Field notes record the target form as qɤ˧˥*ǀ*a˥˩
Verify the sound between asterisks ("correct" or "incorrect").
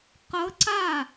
correct